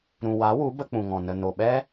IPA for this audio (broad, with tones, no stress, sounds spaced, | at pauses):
ɾ ũ˨ w a˨˦ w u˨˦ b ə˧ k͡p ũ˨ ŋ ɔ̃˨ n ə˨ n o˨ ɓ ɛ˦